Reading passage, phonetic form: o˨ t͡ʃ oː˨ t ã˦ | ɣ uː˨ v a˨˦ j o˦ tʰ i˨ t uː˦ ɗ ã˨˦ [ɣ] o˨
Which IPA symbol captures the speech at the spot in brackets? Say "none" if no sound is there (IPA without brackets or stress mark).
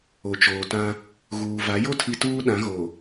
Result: ɣ